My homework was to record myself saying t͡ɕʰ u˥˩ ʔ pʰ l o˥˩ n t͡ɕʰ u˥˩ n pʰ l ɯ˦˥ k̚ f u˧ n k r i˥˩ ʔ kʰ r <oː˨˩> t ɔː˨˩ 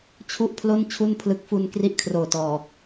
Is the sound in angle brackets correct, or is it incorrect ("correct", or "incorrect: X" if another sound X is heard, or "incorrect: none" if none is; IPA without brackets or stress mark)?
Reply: correct